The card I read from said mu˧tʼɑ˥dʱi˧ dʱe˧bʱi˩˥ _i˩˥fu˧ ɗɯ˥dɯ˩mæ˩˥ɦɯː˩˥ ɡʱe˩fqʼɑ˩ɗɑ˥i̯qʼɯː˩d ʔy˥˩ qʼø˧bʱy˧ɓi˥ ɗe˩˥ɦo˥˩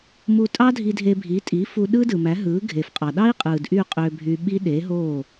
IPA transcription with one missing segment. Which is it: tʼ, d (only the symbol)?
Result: tʼ